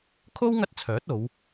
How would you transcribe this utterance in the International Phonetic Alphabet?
kʰo˥w ŋɐ˥t̚t͡sʰœː˨˥t̚o˨˧w

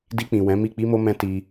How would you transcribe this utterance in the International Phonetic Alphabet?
di˧k͡pĩ˨ wɛ̃˨˦mi˦˨ k͡pi˧mo˧mɛ̃˧ ti˧

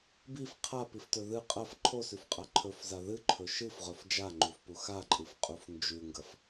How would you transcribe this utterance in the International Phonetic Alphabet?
bif qʰapiftɵ ðɨ qʼɐf ǃʰosʉfqʼa ǃʰɵfza ðɨǃʰɵ ʃɨfʁɵf d͡ʒaŋ͡ǃufpu xaǃʼɨfqʼuf nd͡ʒʉŋɡɐf

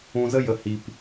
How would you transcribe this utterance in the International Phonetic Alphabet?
ũ˧zə˦ jə˨hi˨p

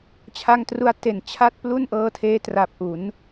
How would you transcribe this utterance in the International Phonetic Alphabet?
t͡ɕʰa˧ŋtru˧a̯ te˨˩nt͡ɕʰa˥˩t̚plu˥˩n ʔɤː˧tʰeː˦˥ tra˨˩p̚ʔu˩˦n

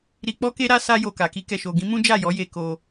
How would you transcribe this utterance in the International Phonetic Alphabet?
ɾi˧k͡pɔ˦ke˦ ɾa˦sa˦jo˧ka˨ ki˧kɛ˨ʃo˨ɡĩ˨˦ mũ˦d͡ʒa˦˨jɔ˨˦je˧ ko˧

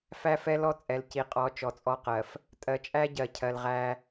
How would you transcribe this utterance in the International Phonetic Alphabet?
fæ˦fɛ˦lɔ˦ t͡sʼɛ˨lci˨qʼɔ˨˦ t͡ʃɔ˨t͡sʼɔ˦qɜ˨f | tʼɜ˨t͡ʃʼæ˦ɟɜ˨ cʰɜ˨lʁæ˦

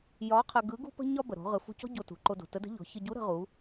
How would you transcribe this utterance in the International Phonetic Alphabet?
jɒ˧˥qʰə˧ɡɯ˧˥ ɡṳ˥pə̤˥ɲɒ˥ bə˩ɾo̤˩˧ ʁɯ˩˧fṳ˧cɔ̤˥ ɟo˧tṳ˩ǃo˧ do̤˩tə˧˥də̤˧˥ ʎɔ̤˩˧çə˧ ɟu˧˥ɾə̤˩˧ʁu˩˧

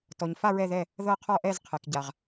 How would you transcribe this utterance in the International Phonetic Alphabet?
tɔ˨ɲfa˥˧ ɹɛ˥˧ðɛ˥˧ | ðɤ˥˧qʰɔ˥˧ʔɛ˥˧z qʰɛ˨kɟa˨ʁ

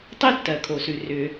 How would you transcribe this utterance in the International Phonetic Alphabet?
tˤe˥tːɜ˩ kʰo˩sʉ˩ rʏ˩

